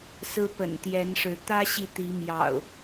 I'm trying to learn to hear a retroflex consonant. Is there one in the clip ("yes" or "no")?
yes